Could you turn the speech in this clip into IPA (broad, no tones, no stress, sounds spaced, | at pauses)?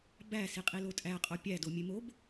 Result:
b æ s i qʼ i l o tʼ æ qʼ o pʲ æ d o mʲ e m o b